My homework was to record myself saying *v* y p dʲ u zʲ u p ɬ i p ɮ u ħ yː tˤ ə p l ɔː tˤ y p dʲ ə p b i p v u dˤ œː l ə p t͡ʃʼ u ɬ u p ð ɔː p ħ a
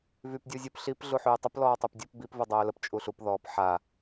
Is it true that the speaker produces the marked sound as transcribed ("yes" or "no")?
yes